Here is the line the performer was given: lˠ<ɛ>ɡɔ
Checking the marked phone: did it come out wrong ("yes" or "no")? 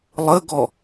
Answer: yes